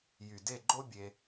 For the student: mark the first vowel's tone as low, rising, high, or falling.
low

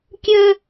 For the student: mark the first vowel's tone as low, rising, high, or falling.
high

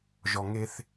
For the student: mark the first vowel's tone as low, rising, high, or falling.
low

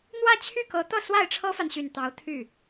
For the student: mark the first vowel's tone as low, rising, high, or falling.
falling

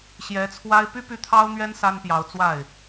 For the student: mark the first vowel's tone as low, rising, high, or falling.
rising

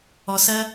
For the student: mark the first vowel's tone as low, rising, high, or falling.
low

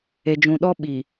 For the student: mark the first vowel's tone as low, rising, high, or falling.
low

